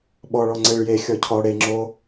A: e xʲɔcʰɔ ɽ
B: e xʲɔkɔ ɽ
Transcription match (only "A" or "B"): A